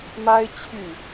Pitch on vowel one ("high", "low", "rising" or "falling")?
high